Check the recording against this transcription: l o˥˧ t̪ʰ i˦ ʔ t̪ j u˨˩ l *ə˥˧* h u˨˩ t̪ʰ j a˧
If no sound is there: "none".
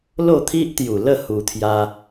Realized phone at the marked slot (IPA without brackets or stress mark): ə˥˧